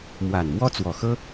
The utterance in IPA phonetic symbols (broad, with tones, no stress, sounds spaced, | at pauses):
m w a˨˩ n m w ɔ˥ t͡s w ɔ˨˩ x ɤ˥